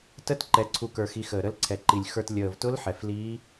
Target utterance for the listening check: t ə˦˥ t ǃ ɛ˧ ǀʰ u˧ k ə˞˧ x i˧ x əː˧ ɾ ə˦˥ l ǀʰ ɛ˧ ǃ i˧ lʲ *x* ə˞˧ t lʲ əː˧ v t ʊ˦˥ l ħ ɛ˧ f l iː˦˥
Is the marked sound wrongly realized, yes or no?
no